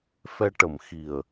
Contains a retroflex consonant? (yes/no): yes